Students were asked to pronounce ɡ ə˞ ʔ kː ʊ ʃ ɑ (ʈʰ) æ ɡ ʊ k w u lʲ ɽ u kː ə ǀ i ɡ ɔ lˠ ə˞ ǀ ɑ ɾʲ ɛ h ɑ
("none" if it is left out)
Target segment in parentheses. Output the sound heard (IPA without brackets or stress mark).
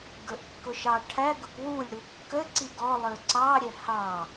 ʈʰ